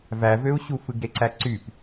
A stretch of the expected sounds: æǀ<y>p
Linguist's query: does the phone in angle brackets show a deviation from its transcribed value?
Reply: no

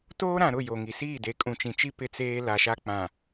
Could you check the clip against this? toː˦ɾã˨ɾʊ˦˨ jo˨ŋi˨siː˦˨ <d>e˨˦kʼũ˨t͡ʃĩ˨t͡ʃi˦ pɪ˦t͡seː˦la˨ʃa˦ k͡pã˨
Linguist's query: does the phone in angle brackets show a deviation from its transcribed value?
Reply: no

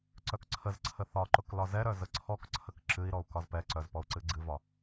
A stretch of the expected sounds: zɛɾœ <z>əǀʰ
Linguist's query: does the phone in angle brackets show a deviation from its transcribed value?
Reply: no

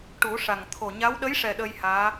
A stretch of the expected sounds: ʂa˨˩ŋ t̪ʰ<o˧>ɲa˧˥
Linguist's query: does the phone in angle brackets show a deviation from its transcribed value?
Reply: yes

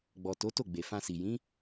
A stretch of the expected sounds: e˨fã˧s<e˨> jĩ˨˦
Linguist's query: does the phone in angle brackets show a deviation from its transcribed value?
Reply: yes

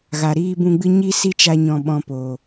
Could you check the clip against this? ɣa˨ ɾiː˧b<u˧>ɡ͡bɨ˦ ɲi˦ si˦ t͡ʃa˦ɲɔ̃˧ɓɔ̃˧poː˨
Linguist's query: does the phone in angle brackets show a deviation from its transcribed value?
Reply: yes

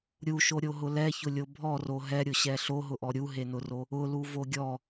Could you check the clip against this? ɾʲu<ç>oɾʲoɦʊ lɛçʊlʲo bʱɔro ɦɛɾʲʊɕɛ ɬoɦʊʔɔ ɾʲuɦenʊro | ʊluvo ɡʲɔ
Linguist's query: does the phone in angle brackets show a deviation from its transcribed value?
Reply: yes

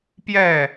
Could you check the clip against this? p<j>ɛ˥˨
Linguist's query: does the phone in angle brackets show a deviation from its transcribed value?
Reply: no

